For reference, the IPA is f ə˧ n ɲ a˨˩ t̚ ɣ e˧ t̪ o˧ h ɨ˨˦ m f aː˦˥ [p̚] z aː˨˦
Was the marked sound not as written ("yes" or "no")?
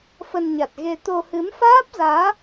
no